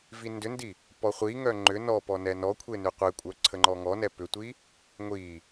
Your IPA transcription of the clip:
vindʏndi | pɔχʷiŋœ ŋ͡ǃʏ nɔpɔ nɛnɔkʷʰe nʏqʷekʷʼœ ǀʰəŋ͡ǃɔŋɔnɛ pʏtʷi | ŋʷi

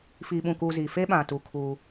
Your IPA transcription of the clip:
fiː˨ɓũ˨kuː˨ zi˨fe˦ɓã˨tu˨ kʰuː˦

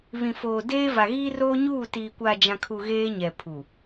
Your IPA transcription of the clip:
βĩ˨foː˨deː˦va˨ ɣiː˦roː˦ɲuː˦˨ tiː˨ kʷa˨ d͡ʒã˨kʰu˨ ɣeː˦ɲɛ˨pʰu˨

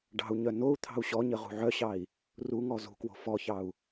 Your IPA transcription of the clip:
ɖɑ̤u̯ɲœ nou̯ t̪ʰɑ̤u̯ɕɔɲə ʁṳʕœɕɑi̯ | ruŋɔ zṳkwo̤ fɔçɑu̯

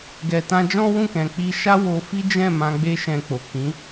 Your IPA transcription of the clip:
ɡɛ˨tã˧d͡ʒɔ̃˦ wũ˦˨kɛ̃˨ k͡pi˧ʃa˦ wo˧fi˦ d͡ʒɛ̃˦˨ mã˧ɡ͡be˦ʃɛ̃˧k͡po˨ kĩ˨˦

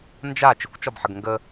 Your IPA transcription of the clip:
nd͡ʒa t͡ʃɪkʷt͡ʃɒbħəɡ ŋɡə

